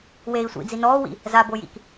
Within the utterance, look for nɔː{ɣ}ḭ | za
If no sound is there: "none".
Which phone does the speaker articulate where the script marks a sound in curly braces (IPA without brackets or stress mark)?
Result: w